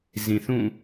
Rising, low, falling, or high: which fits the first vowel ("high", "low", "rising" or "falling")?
low